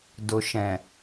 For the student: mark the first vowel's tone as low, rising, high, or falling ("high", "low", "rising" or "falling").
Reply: low